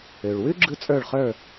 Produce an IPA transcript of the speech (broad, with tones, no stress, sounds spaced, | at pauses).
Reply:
ø˩ ɭ w ʉ˥ ɡ͡ǁ ɯ˥ t͡sʼ ə˞˥˨ ɭ χ ə˞˥˨